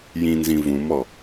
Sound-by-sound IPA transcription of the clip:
j ĩ n z ĩ v ũ m ɔ

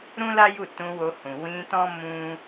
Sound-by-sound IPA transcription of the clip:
ɾ ũ˦ l a˦ j u˦˨ t ũ˧ w o˧ h ũ˨ w ĩ˧ t ɔ̃˦ m ũ˦

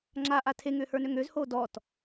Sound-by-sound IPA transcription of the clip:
ŋ͡ǁ a ʔ a tʰ e ŋ ʏː h ə˞ n ø ŋ ø z h oː d ɔː t

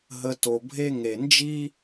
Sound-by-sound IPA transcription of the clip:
ɦ ə˨ t o˩ bʱ e˦ ŋ e˩ n d͡ʒ i˦

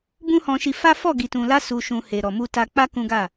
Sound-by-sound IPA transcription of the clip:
b ũ˦ h ɔ̃˧ ʃ i˧ f a˦ f ɔ˦˨ ɡ i˨ t ũ˨ l a˧ s u˧ ʃ ũ˧ h e˨ ɾ ɔ˨ m u˧ t a˧ k͡p a˦ k ũ˦ ɡ a˦˨

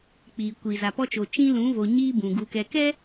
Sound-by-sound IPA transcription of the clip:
k͡p i˨ kʷ i˨ z a˨ p ɔ˦ t͡ʃ o˨ t͡ʃ ĩ˦ l ũ˨˦ v o˨ ɲ iː˦ b ũ˨ ɡ u˨ k ɛ˨ k ɛ˦

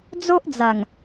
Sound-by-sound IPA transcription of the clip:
d͡z o˦ ʔ d͡z a˨˩ ŋ

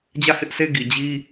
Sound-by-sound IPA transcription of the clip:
d͡ʑ ä˦˨ h ɪ˦ ʔ sʰ e˦ ɡ i˨ d͡ʑ i˦

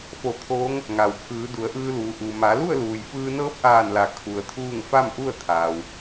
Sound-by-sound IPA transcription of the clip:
f o˧˩ t̪ʰ oː˧˥ ŋ | ŋ a˩ w pʰ ɯː˩˧ d u˩˧ ə̯ ʔ ɯː˧ l uː˩˧ ʔ u˩ m a˩˧ l u˥˨ ə̯ l uː˩ j f ɯː˧ n ɤː˧˥ p̚ ʔ aː˧˩ n l a˩ kʰ u˩ ə̯ t̪ʰ uː˥˨ ŋ f a˥˨ m ʔ u˥˨ ə̯ t̪ʰ aː˩ w

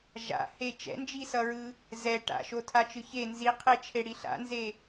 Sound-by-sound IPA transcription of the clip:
ʒ a̰ h e t͡ʃ ɛ̰ n d͡ʒ i s ʌ ɹ ɯ | z ɛ ʈ a̰ ʃ o tʰ a t͡ʃ ɯ ç e n z i qʰ e t͡ʃʰ e ɽ i ɬ a̰ n z e

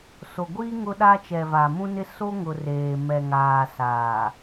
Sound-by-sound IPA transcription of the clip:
s o˨ ɡʷ iː˦ ŋ ʊ˦ ɗ a˦ t͡ʃ ɛ˨ v a˨ m ũ˦ n ɪ˦ s o˦ ŋ ʊ˨ r eː˨ m ɛ˨ ŋ aː˨ s aː˨

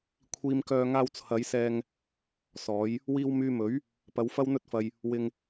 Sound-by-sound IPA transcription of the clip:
kʷʰ iː˧ m k œː˧ ŋ aː˧ w t͡sʰ ɐ˨˧ j s ɛː˧ ŋ | s ɔː˨˧ j | w iː˧ w m yː˧ m ɵ˨˥ ɥ | p ɐ˨˧ w f ɐ˥ w n̪ ɵ˥ t̚ f ɐ˧ j | w ɪ˧ ŋ

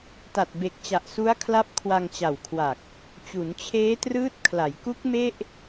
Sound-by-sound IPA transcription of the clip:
t a˨˩ t̚ b e˨˩ k̚ t͡ɕ a˨˩ ʔ s u˦˥ a̯ kʰ l a˦˥ p̚ kʰ w a˧ ŋ t͡ɕ a˨˩ w kʰ w a˨˩ k̚ | t͡ɕ u˩˦ n t͡ɕʰ eː˦˥ t r ɯː˦˥ t̚ kʰ l a˩˦ j k u˦˥ k̚ m e˥˩ ʔ

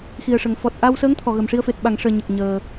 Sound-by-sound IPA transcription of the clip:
x i˨˩ ə̯ ʂ ə˨˩ ŋ f ɔ˨˩ t̚ ʔ a˧ w s əː˧˥ ŋ t̪ʰ ɔ˨˩˨ ɣ ə˨˩ m ʂ i˧ ə̯ f e˨˩ t̚ ɓ a˨˩˨ ŋ ʂ əː˨˩ ɲ ə˨˩ k̚ ɲ əː˨˩

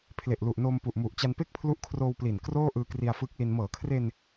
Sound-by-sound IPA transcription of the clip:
pʰ l e˨˩ ʔ l u˨˩ ʔ n oː˧ m p u˨˩ ʔ m u˨˩ ʔ t͡ɕ a˧ n p e˥˩ k̚ pʰ l u˦˥ ʔ kʰ r oː˧ w p l i˨˩ n k r oː˥˩ ʔ ɯː˧ k r i˧ a̯ f ɯː˦˥ k̚ l i˧ n m ɤː˩˦ kʰ r e˧ n

